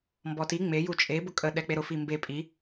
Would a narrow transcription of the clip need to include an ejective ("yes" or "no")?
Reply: yes